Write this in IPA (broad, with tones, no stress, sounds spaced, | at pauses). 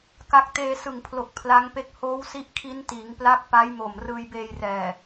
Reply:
k a˦˥ k̚ t eː˧ s ɯ˨˩ ŋ pʰ l o˨˩ k̚ pʰ l a˦˥ ŋ p e˦˥ k̚ h oː˦˥ w s i˦˥ ʔ kʰ i˦˥ n t iː˩˦ ŋ p l a˦˥ k̚ p a˦˥ j m o˨˩ m r ɯː˧ j b eː˧ j r ɛː˨˩